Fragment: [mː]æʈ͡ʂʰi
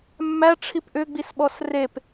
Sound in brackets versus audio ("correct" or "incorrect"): correct